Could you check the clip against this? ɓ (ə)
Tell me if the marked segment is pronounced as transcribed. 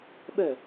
no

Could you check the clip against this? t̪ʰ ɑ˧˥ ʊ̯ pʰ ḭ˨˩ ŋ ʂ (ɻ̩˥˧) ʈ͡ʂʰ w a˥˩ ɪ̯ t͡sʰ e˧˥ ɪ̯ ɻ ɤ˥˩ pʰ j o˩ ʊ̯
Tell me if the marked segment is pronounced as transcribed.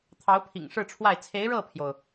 yes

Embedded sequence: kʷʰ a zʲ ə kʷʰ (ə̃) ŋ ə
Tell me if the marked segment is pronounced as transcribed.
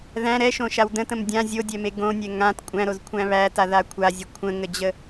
yes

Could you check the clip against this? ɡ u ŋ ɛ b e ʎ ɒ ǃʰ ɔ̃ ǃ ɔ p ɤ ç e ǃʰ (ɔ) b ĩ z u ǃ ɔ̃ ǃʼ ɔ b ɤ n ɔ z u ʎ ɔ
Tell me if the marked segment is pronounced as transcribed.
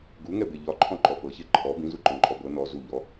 yes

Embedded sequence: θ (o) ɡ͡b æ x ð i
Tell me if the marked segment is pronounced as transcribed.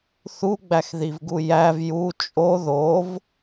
no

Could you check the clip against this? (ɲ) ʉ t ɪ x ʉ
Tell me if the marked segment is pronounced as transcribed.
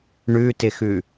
no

